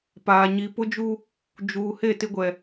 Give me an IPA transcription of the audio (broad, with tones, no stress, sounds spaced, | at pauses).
p aː˨ ɲ i˨ p ʊ˦ d͡ʒ u˦ | d͡ʒ uː˨ h e˦˨ t ɪ˦ ɡʷ ɛ˨